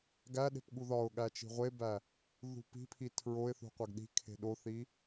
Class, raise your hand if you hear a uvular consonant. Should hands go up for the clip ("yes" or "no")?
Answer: yes